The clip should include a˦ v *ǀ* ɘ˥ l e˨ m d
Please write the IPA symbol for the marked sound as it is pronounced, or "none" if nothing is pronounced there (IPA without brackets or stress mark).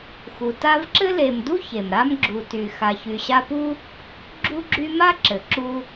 ǁ